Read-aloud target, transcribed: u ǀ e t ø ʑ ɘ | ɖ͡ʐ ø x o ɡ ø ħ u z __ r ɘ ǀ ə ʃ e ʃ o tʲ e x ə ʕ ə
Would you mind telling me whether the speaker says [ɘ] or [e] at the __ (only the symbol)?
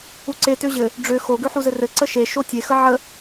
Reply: ɘ